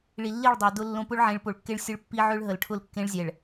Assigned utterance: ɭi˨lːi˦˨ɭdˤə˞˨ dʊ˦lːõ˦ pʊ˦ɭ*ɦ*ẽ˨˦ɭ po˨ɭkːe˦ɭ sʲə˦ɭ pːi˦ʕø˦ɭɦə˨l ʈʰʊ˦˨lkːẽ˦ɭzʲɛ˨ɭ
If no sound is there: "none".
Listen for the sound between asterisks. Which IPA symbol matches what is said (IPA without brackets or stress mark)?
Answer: ʕ